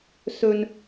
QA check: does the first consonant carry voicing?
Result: no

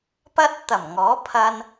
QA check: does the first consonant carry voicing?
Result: no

